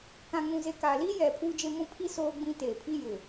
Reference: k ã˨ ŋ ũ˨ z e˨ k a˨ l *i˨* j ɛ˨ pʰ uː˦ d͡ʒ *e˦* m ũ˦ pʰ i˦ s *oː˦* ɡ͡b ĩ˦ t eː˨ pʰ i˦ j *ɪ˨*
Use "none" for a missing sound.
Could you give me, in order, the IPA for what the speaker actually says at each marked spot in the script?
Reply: i˦, e˦, oː˦, ɪ˨

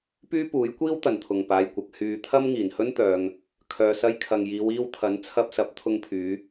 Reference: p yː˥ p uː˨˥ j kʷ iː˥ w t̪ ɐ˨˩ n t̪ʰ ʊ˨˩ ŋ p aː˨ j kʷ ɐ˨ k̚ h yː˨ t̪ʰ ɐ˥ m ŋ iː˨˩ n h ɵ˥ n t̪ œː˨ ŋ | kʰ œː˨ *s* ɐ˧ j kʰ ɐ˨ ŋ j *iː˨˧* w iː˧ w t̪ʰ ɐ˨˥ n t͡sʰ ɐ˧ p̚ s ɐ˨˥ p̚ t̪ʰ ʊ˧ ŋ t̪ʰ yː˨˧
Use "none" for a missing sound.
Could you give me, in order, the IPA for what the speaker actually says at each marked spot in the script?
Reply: s, iː˨˧

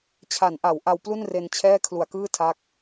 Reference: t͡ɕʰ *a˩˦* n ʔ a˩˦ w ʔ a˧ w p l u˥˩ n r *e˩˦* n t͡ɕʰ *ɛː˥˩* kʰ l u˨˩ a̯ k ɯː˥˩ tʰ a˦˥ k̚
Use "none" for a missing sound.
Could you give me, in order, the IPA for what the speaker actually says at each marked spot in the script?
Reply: a˩˦, e˧, ɛː˥˩

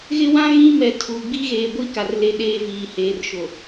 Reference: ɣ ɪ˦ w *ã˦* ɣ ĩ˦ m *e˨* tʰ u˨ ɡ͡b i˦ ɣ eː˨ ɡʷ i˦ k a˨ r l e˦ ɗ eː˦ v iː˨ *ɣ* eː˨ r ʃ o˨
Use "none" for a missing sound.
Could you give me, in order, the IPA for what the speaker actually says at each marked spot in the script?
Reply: ã˦, ɛ˨, h

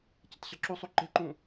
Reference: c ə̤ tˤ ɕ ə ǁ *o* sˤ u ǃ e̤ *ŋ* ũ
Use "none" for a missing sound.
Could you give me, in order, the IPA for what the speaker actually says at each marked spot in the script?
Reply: u, ǃ

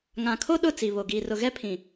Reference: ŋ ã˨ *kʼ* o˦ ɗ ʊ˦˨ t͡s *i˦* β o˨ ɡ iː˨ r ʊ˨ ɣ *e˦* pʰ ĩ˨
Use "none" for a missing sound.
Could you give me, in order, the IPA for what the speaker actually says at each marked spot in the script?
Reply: kʰ, i˨, ɛ˦

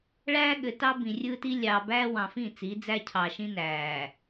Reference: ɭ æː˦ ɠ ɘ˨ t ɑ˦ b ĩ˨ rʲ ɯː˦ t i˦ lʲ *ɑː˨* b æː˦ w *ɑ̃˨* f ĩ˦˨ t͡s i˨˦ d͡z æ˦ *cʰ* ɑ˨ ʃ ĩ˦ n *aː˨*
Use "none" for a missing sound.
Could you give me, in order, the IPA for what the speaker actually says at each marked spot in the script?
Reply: ɑː˨, ɑ̃˨, cʰ, æː˨

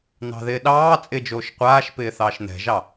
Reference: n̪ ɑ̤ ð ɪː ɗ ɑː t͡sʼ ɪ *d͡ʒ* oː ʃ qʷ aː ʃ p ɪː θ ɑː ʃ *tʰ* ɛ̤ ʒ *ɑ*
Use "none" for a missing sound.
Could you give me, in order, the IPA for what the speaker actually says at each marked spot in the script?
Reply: d͡ʒ, n̪, ɑ

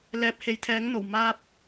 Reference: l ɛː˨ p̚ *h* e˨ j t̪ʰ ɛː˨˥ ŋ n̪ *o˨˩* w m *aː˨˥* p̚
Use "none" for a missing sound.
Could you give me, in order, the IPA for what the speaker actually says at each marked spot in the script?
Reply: h, o˨˩, aː˧

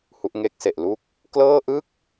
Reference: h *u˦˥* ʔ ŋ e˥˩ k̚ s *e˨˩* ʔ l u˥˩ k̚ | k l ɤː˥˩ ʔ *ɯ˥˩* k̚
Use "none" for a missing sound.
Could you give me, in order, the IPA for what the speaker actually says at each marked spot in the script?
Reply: u˦˥, e˨˩, ɯ˥˩

